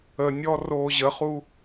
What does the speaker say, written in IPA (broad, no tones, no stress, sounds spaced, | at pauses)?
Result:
ə nʲ ɔ r oː ʑ ə χ u